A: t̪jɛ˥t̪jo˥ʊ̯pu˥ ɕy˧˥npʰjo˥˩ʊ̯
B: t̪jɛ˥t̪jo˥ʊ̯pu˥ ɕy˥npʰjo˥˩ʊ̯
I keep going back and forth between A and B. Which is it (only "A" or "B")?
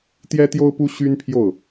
B